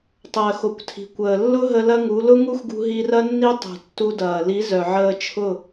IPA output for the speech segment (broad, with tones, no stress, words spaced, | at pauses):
tˤəː˨xo˨kʷtʰi̤˨kʷəː˨ lːʊ˦ɦə˧ lɐ˦ŋu˨˦ lʊ˦ŋu˦xɡṳ˧ ɦi˧rɐ˦nːi˦ tˤṳ˨tːu˧dɐː˨ li˨˦zœ˨ʕəː˧ t͡ʃʰʊ˦˨